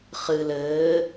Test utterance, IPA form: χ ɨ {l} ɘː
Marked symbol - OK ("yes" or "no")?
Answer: yes